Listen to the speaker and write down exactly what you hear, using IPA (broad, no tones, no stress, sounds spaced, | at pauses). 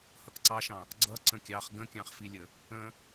h ʌ k ǀ ɑ ʃ ɑ̃ | ɡ͡ǀ ʌ ǀ ə̃ kʲ ɑ χ ɡ ə̃ kʲ ɑ̃ χ f i lʲ ə | ə̃